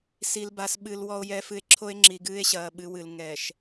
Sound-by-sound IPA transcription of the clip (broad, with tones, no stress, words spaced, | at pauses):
si˨lba˨sɓɨ˨l wɔ˨o̯jɛ˨fɨ˨e̯ ǁʰo˦e̯ŋ͡ǁi˨ɡɨː˦e̯ɕɐː˨ ɓɨ˦wɨ˨l ŋɛː˨ʃ